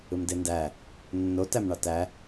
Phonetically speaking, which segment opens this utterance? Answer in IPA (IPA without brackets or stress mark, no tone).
ɯ